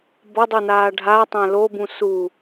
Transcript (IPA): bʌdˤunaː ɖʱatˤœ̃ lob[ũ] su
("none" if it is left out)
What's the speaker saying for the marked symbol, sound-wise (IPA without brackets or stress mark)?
ũ